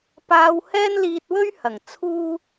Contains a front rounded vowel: no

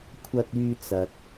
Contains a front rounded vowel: yes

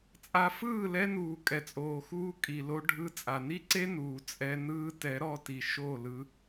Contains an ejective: yes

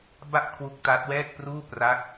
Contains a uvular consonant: no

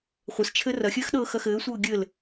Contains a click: no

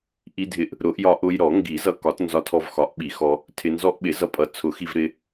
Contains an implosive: yes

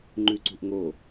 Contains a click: yes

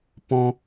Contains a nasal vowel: yes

